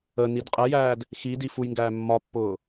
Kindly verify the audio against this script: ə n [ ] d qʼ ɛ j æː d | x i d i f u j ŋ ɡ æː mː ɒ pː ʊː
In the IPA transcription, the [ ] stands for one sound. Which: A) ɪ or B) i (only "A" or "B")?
B